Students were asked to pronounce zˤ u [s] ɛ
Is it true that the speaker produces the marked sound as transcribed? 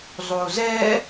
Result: no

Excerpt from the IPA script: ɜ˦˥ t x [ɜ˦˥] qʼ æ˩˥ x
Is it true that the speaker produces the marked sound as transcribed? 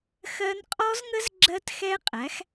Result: no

